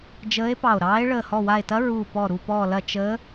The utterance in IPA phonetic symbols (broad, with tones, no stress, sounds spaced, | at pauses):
d͡ʒ əː˧˥ e̯ p ɑ˧˩ o̯ ɾ ɑː˧˥ e̯ ɭ əː˧˩ h ɔ˧˩ w a˧˩ e̯ t ɐ˧˥ ɹ uː˧˩ p ɔ˧˩ ɾ u˧˩ p ɔː˧˩ l ɐ˧˩ t͡ʃ əː˧˥